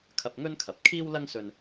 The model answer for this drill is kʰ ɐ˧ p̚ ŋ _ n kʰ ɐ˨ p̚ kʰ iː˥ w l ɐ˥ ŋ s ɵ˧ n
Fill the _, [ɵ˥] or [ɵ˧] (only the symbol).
ɵ˥